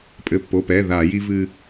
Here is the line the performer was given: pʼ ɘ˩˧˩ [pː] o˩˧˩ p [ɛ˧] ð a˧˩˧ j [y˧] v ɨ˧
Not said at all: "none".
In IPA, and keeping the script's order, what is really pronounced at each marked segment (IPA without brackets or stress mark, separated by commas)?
pː, ɛ˩˧˩, i˧